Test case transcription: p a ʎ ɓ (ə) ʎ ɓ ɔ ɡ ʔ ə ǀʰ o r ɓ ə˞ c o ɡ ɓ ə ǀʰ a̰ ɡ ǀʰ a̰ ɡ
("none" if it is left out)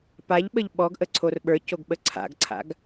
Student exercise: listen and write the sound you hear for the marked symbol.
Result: ə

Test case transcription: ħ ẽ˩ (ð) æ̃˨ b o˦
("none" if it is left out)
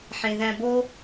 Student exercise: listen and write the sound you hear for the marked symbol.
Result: ð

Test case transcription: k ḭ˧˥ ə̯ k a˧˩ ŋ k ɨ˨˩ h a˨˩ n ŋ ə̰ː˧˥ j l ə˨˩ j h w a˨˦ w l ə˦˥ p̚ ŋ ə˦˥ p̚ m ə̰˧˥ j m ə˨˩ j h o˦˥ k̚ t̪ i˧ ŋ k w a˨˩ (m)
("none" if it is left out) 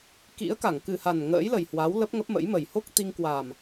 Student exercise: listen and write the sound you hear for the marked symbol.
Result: m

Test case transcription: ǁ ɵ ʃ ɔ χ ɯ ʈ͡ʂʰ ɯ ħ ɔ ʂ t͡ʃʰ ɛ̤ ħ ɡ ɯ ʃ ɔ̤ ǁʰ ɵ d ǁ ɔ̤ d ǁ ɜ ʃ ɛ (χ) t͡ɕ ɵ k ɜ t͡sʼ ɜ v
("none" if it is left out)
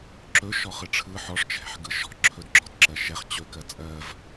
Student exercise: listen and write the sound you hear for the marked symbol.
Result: χ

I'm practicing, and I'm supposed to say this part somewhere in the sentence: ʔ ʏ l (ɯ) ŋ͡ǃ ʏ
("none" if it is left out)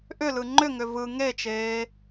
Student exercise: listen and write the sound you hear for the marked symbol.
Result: ɯ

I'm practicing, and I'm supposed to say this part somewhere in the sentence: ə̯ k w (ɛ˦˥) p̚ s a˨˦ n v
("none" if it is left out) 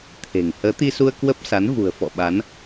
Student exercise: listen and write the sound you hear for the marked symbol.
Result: ə˦˥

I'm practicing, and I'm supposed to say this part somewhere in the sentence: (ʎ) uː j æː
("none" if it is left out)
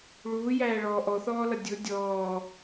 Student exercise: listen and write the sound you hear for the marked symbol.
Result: ɭ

